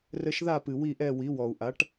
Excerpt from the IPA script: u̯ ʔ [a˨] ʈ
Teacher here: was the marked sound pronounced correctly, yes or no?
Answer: no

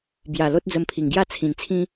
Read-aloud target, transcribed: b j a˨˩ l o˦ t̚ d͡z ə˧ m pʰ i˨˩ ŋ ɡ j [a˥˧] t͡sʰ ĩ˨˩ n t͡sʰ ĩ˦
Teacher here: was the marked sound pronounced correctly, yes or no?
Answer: yes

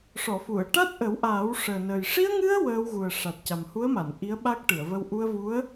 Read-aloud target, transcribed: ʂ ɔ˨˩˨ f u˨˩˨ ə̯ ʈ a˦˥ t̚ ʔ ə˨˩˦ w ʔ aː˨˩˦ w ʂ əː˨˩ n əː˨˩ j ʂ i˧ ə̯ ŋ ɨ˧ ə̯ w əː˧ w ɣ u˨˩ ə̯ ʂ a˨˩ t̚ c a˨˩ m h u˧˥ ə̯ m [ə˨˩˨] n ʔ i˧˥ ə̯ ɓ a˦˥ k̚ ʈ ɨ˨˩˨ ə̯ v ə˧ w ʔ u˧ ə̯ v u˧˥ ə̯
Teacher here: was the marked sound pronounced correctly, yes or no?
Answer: no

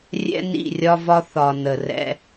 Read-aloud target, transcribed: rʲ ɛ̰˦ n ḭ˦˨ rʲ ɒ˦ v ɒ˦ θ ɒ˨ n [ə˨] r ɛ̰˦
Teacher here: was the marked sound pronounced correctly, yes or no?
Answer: yes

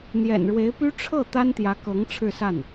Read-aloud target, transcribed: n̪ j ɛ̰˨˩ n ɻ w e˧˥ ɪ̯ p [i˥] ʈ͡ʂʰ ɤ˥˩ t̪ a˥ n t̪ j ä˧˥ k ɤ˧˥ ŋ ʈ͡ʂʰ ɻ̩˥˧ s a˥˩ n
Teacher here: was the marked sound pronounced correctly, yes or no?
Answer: no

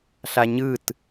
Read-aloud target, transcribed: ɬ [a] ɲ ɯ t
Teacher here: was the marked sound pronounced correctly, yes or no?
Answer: yes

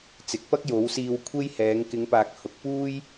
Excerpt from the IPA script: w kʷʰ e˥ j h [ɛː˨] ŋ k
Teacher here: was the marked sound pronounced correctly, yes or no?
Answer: no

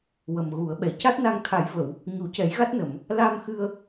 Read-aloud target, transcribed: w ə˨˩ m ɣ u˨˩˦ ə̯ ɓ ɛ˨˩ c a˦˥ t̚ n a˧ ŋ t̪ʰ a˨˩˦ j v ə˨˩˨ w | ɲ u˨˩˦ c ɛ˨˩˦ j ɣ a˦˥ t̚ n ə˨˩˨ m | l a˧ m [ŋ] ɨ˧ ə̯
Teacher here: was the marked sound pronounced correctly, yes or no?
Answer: no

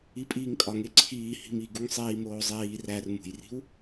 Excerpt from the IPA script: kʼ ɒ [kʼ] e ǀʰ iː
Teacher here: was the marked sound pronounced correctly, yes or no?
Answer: no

